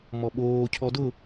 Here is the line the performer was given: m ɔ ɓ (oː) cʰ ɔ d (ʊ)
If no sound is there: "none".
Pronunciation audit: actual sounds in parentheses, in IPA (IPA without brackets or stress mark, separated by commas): oː, ʊ